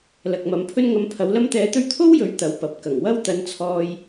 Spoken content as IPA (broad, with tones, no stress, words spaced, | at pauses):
lɐ˨k̚mɐ˨˧mpʰɵ˥n ŋɐ˨˧m pʰɐ˨˧wlɐ˥mt̪ɛː˧t̪ɵ˥ɥ t̪ʰo˥wjɵ˨˥ɥ t̪ɐ˨˧wpɐ˨˥p̚ kɐ˨˩ŋwɐ˥w t̪ɐ˧nt͡sʰɔː˧j